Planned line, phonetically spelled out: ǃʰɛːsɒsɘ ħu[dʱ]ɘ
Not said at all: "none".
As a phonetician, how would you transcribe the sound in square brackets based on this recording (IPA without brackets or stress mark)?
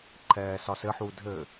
dʱ